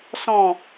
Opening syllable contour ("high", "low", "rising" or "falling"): falling